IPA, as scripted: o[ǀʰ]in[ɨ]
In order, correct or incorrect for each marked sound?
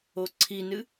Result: correct, correct

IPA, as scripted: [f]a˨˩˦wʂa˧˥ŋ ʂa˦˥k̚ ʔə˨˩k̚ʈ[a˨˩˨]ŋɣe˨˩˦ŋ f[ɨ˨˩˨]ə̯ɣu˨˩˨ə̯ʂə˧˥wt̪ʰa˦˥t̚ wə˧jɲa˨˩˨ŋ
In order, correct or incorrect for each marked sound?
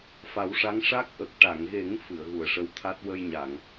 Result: correct, correct, correct

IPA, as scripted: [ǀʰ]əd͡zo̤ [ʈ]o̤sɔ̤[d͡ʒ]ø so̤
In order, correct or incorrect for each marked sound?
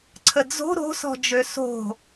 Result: correct, incorrect: ɾ, correct

